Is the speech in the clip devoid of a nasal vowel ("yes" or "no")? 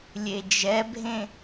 no